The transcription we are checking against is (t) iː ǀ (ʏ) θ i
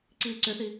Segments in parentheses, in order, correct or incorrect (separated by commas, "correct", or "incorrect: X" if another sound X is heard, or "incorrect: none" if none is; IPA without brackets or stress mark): incorrect: ǀ, correct